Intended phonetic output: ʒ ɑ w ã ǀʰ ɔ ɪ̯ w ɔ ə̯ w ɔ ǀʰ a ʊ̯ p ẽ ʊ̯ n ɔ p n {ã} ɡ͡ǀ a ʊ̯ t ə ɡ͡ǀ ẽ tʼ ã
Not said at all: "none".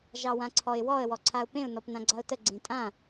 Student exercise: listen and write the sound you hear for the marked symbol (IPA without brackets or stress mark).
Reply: ã